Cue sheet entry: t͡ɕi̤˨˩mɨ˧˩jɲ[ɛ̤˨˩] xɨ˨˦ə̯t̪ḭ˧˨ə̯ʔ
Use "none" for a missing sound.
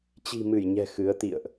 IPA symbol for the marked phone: ɛ̤˨˩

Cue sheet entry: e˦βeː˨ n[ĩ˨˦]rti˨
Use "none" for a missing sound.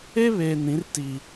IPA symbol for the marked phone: ĩ˨˦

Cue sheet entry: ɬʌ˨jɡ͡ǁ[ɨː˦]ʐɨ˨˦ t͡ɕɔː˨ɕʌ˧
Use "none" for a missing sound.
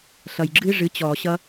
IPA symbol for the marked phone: ɨː˦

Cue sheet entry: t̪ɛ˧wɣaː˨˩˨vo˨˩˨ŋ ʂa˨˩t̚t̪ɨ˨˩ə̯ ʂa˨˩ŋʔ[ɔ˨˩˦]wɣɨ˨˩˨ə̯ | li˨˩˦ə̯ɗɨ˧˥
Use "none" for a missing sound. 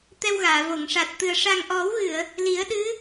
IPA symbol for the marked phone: ɔ˨˩˦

